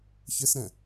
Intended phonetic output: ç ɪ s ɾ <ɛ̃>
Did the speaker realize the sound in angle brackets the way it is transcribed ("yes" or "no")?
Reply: yes